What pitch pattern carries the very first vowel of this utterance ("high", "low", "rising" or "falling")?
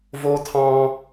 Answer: high